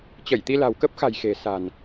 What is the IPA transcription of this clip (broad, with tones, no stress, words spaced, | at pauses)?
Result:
t͡ɕə˧˩jt̪i˧ la̤˨˩wkə˦˥p̚xa̤˨˩j xe̤˨˩sa̤˨˩n